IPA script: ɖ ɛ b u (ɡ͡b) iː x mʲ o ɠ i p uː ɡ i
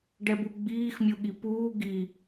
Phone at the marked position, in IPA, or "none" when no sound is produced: ɡ͡b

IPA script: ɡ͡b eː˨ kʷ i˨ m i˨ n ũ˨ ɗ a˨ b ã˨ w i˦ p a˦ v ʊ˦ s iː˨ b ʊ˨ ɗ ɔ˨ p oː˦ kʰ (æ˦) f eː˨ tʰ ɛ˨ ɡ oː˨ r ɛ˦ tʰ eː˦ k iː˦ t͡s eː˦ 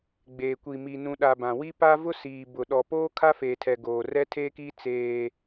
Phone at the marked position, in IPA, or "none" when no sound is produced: a˦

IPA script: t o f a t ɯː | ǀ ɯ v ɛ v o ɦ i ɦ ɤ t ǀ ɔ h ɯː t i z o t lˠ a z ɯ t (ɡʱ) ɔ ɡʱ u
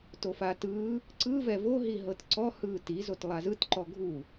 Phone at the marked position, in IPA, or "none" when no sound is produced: ǃ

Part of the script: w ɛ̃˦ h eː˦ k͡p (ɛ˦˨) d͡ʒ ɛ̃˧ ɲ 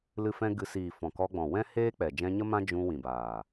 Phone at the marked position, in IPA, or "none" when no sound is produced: ɛ˨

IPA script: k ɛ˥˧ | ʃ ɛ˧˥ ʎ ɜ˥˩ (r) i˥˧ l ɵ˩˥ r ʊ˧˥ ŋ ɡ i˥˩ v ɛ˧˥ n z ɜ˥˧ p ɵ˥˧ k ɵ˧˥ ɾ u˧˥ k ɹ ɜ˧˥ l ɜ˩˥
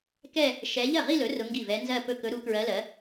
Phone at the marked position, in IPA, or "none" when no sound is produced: ʁ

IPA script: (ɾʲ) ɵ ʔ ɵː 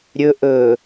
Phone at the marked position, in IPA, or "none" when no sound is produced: ɾʲ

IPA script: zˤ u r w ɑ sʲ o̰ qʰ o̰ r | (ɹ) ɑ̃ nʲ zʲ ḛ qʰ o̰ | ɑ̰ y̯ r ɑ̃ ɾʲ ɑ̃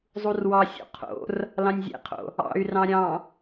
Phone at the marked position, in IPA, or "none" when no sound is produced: l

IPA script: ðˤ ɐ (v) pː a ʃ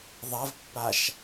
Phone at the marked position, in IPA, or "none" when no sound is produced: v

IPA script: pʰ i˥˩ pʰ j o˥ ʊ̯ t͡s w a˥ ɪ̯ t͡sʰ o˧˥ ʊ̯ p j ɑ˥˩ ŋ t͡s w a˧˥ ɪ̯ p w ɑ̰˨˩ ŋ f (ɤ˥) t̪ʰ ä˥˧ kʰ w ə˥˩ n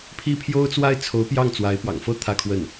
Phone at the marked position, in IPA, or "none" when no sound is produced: ɤ˥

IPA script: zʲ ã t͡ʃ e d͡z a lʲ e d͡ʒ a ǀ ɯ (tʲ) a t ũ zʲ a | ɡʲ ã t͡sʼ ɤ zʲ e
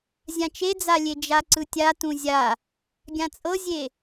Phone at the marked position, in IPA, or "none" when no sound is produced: tʲ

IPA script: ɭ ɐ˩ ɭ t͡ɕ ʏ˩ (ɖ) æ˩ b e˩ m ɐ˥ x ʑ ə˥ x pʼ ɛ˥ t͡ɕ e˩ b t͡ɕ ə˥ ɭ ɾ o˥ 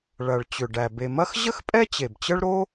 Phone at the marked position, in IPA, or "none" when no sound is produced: ɖ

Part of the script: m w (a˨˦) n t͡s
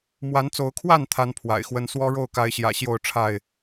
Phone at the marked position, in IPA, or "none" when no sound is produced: a˨˦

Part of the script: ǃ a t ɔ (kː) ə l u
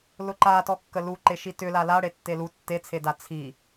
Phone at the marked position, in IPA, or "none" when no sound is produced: kː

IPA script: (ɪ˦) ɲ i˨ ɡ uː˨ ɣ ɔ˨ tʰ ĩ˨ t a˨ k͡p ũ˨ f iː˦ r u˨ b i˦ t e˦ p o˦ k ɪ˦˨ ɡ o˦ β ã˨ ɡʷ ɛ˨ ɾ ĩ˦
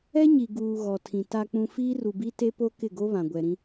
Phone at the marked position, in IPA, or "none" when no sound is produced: ɛ˦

